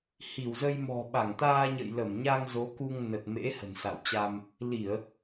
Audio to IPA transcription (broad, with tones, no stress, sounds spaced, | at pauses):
h i˧˩ w z ə˧ j m ɔ̤˨˩ ɓ a˧˩ ŋ t̪ aː˧ ɲ ə̰˧˨ j l ə˧˩ m ɲ a˧ ŋ z o˨˦ k u˧ ŋ n ə˨˩ t̚ m ḛ˧˥ h ə̤˨˩ n s a̰˧˨ w t͡ɕ a˧ m | l i˧˩˨ ə̯